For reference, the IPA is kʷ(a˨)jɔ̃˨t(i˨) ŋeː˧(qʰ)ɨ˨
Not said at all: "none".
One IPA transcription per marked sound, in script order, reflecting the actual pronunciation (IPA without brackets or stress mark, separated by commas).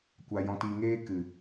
a˨, i˨, k